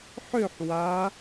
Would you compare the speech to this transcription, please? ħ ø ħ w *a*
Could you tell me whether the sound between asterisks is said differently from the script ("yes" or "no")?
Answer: no